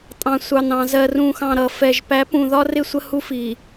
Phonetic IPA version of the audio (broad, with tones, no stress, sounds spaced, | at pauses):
tʼ ɑ̃˨ sʷ ɑ˨ n ɑ̃˨ z ɜ˨ r ũ˨ x ɑ̃˨ ɾ ʌ˨ f ɛ˨ ʒ p æ˨˦ p ũ˨ ð ɒ˦ r ɪ˦ sʷ ə˦ h u˦ f i˨